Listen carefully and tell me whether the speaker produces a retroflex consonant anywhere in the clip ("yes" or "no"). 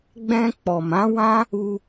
no